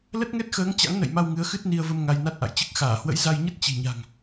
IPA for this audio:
l ə˦˥ t̚ ŋ ɛ˦˥ t̚ x əː˨˦ ŋ t͡ɕ a̰˧˥ ŋ n ə̰˧˨ j m a˧ w ŋ ɨ˨˦ ə̯ x ɨ˦˥ t̚ n i˧ ə̯ v ə˧ m ŋ a˧ j n a˦˥ t̚ ʔ a̰˧˨ j t͡ɕ ɨ˦˥ k̚ x aː˧˩ h w ə̰˧˥ j z a˧ j ɲ ə˦˥ t̚ t͡ɕ i̤˨˩ ɲ a̤˨˩ ŋ

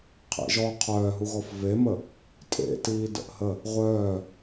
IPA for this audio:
qʰ ḛ ʒ ɔ qʰ œː ɦ u ɣ ɔ f v e m ə | tʼ ḛ t iː d ə̰ ʔ h ə | ʁʷ œː

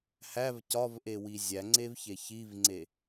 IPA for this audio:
h æ v c ɒ v ʔ e w i zʲ æ ŋ͡ǀ e v ç e ç i v ŋ͡ǀ e

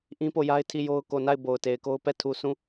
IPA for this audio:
ʔ ĩ˦ p o˦˨ j a˦ ɪ̯ tʰ i˦˨ j o˦ ʊ̯ k o˨ n a˦˨ ɪ̯ b o˨ ʊ̯ t e˨ ɪ̯ k o˦ ʊ̯ p ɛ˦˨ tʰ u˨ sʰ ũ˦˨

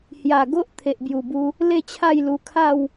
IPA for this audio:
h j a˨˩ ɡ o˦ ʔ t̪ʰ e˨ ʔ b j u˨˩ b u˧ | l e˥˧ t͡ɕʰ a˥˧ j l u˧ kʰ a˥˧ w

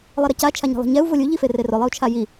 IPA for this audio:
lˠ i ɾ ɛ c a t͡ʃʰ a ɲ e̤ lˠ e̤ ɲ ɛ u̯ v ʊ lʲ u ʎ i f e r e r ʊ lˠ ɪ u̯ t͡ʃʰ a j i

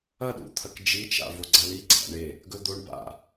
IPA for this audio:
ɐ ɗ ṵ t̪ʰ ɐ k d͡ʒ i t͡ʃ a̰ v o ɡ͡ǀ a l i ɡ͡ǀ a̰ ɳ e | ɡ ɵ d̪ o ɳ b a̰

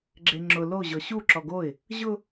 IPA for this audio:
ɡ͡ǁ e ŋ͡ǁ ʊ l o ʑ ɔ ɕ u ǁ ɔ ɡ o ɪ̯ | ʑ ʊ

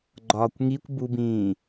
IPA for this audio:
ɡ͡ǃ ɒː kʷ ŋ i kʷ b u b ĩː

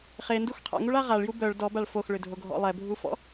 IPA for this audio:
χ e n d u x qʰ a̰ ŋ u ɭ a ʁ a ɭ j u b œ ɭ d ɔ b a ɭ f o x ɭ ʏ dʱ o ɡʱ ɔ̰ lˠ ɛ bʱ u f ɔ̰

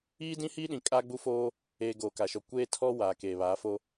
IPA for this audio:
iː˦ d ĩ˦ h iː˦ ɗ ĩ˨ kʼ a˦ ɡ͡b u˦ f oː˦ | eː˨ ɡ oː˨ k a˨ ʃ ɔ˨ kʷ eː˦ tʰ ɔ˦ w aː˨ k eː˨ β aː˨˦ f o˦

